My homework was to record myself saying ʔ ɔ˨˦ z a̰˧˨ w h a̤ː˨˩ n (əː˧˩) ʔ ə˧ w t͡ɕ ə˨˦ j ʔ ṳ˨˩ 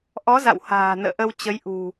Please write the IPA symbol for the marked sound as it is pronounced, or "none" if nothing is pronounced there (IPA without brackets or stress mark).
ə̰ː˧˨